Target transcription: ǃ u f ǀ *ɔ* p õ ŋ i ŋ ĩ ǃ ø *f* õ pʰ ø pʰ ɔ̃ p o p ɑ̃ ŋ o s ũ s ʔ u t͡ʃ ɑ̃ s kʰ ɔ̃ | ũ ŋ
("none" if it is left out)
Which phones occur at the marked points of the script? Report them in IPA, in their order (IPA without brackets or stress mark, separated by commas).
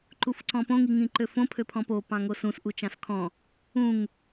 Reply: ɔ̃, f